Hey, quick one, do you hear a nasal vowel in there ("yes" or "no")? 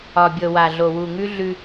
no